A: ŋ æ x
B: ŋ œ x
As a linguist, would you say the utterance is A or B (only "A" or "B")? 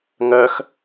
B